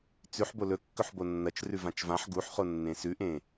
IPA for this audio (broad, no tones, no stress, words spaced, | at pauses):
t͡sʉħbo lɵkːɵħ bonːɐt͡ʃ rʉvãt͡ʃvãħ ɡuħχo nːẽsʉʔẽ